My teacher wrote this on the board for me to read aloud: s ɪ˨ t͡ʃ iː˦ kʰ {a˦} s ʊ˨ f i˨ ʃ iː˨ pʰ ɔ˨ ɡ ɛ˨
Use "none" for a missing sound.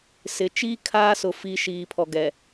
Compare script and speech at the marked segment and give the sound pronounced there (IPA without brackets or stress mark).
aː˦